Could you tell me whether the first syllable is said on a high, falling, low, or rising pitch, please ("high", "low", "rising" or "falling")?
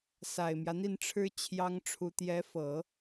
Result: low